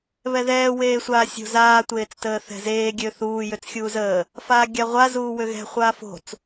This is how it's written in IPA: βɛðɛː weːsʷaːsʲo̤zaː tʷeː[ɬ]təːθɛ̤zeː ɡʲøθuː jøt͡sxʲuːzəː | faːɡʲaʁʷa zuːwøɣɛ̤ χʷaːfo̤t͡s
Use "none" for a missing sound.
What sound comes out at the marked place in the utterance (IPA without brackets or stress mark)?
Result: t͡s